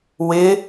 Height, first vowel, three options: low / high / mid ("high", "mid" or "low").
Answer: high